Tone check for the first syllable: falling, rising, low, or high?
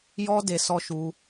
high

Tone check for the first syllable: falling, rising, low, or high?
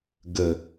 low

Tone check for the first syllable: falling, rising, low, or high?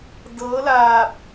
rising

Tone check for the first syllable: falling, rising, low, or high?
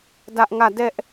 high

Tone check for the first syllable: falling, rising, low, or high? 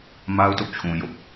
high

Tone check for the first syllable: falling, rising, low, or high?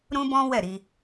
high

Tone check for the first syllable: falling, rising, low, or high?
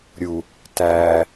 low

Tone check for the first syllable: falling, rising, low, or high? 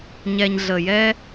low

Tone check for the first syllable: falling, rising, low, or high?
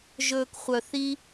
low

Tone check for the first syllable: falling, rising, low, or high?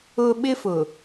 high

